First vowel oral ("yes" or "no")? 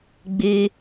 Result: yes